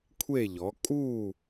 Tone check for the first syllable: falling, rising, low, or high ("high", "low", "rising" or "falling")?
falling